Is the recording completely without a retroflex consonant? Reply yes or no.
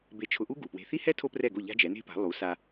yes